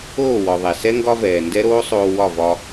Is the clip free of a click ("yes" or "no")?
yes